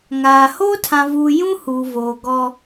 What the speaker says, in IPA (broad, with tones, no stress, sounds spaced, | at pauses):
ŋ aː˨ h oː˦ tʰ ã˨ v uː˨ j ũ˦ h uː˨ v oː˨ ɡ ɔ˦